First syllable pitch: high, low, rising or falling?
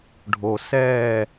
low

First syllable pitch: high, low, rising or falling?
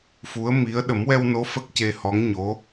rising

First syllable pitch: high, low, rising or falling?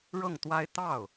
falling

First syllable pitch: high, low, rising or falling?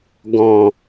low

